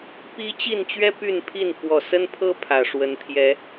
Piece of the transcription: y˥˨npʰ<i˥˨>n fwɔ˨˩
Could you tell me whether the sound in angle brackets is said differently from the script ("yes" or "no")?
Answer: no